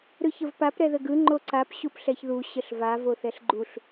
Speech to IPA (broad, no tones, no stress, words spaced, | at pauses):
ɾɯçəvpap ɾɛðəɡɯ ŋ͡ǃoǀap ɕupɬɛçðu ɕəɬva voθɛɬɡ͡ǃuɬ